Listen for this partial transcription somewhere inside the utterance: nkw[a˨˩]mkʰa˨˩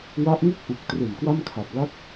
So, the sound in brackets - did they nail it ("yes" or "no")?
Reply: no